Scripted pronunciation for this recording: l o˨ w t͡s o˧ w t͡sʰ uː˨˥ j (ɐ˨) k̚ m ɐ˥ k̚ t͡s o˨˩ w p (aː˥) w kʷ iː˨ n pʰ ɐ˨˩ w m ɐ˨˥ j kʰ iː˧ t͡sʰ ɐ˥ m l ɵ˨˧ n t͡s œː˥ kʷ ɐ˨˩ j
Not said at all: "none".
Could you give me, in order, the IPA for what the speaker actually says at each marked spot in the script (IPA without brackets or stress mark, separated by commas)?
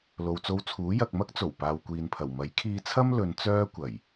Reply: ɐ˨, aː˨